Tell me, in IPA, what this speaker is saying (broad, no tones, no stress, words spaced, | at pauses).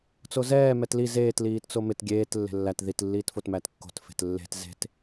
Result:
t͡sozɛː mɛtli zeːt liːtt͡somɪt ɡʲeːt lːe̤lːæt ðit lːiːtfotmætkːo̤t fe̤tlːe̤t ze̤t